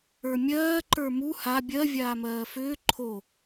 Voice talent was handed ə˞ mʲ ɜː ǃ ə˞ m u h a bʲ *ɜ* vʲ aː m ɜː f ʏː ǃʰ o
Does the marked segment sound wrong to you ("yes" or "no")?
no